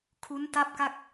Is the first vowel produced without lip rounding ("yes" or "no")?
no